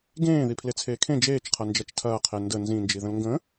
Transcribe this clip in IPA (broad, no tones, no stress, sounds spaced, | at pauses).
ɡ ẽː ð i pʰ l e t͡sʰ eː kʰ ẽ d͡ʒ eː t͡ʃ qʰ ɐ n d͡ʒ ɐ t͡ʃ tʰ ɐː qʰ e n d ə n z ĩ n d͡ʒ i ð ə̃ l ŋ ɡ ə̃